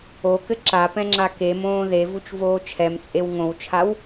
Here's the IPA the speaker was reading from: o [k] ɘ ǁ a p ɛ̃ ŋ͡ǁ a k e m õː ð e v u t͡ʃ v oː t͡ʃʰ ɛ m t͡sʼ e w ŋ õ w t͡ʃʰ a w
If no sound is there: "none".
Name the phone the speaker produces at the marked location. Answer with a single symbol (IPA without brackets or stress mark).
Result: k